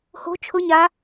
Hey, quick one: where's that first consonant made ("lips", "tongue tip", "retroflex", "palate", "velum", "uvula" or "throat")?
throat